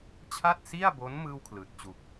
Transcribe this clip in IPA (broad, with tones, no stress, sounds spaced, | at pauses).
t͡ɕʰ a˥˩ t̚ s i˥˩ a̯ b o˦˥ n m ɯː˥˩ w kʰ l ɯː˨˩ t̚ t͡ɕ u˨˩ k̚